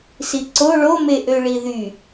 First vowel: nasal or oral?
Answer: oral